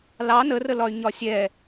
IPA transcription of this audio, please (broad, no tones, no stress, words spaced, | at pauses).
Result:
lɑ nərəlɒy̯ ɲɒsʲɛ